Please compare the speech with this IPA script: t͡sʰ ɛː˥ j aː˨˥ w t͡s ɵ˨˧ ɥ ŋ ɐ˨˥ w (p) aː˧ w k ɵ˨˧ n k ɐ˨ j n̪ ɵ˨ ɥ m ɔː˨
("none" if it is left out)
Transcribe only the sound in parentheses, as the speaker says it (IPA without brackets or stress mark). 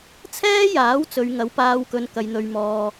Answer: p